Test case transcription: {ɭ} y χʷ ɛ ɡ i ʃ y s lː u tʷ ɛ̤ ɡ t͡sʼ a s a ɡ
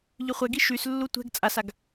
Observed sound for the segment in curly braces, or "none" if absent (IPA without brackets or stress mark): ʎ